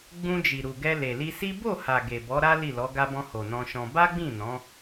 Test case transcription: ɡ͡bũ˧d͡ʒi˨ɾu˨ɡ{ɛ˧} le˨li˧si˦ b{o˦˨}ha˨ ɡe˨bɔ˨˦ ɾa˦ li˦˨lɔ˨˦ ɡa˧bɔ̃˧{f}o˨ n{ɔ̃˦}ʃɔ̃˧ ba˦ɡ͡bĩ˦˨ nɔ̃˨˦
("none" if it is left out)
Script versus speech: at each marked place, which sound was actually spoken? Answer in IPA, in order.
ɛ˧, o˦˨, h, ɔ̃˧

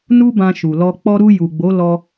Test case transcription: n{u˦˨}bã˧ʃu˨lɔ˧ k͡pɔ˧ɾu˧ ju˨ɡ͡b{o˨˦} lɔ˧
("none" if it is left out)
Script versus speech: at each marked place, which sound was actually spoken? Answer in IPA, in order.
u˦, o˨˦

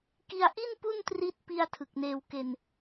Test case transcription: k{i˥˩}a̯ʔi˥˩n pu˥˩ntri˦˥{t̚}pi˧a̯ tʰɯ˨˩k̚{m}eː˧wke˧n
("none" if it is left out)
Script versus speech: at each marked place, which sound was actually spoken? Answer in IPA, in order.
i˧, t̚, n

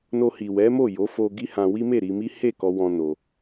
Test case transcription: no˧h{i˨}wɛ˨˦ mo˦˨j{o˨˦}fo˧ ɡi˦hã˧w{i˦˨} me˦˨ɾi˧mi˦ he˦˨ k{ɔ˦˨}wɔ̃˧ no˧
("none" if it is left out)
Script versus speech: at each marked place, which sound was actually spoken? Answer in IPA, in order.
i˨, o˨˦, i˦, ɔ˧

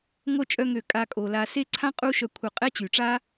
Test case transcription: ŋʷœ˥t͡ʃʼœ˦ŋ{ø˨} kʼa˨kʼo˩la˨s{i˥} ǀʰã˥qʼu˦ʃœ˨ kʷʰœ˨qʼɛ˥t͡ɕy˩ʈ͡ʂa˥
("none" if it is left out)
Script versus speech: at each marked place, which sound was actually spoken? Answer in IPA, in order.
ø˨, e˥

